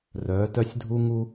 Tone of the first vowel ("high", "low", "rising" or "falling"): rising